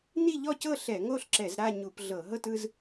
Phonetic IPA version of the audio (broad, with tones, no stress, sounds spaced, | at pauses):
n i˥˧ ʎ ɔ˥˧ c ɤ˥˧ ɬ ɛ˧˩˧ ŋ o˥˧ ɬ ǁ ɛ˧˩˧ z ɾ a˥˧ ɲ u˧˩˧ p ɮ ɤ˧˩˧ ɦ ɤ˥˧ t ɯ˥˧ z